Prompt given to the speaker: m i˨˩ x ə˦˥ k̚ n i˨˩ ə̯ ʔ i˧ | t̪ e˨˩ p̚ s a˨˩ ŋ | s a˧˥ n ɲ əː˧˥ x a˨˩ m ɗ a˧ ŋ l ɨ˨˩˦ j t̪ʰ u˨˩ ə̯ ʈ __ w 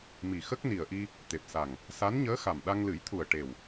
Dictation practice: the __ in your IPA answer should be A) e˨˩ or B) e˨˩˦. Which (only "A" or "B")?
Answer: A